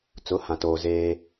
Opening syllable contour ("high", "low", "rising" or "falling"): rising